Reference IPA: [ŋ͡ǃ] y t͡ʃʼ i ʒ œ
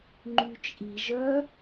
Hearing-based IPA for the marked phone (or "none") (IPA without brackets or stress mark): ŋ͡ǃ